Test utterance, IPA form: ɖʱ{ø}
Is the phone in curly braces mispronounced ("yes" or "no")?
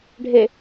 yes